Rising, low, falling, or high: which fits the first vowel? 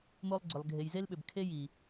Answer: high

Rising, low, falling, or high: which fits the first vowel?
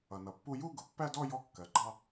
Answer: low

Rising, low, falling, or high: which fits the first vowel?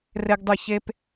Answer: high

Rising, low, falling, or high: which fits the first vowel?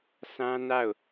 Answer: high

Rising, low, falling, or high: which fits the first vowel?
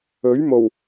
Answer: rising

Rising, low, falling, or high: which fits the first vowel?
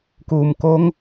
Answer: low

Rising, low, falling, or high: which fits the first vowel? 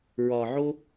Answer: low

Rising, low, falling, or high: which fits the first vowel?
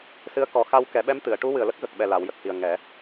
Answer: rising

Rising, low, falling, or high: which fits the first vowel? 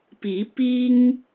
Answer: rising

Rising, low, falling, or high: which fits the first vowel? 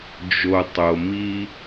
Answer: low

